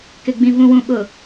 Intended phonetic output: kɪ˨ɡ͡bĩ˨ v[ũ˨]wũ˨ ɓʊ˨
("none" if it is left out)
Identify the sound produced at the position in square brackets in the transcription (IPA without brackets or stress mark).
ũ˨